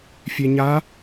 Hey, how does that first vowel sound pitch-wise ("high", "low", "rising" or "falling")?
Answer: low